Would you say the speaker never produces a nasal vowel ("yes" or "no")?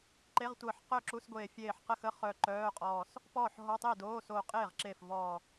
yes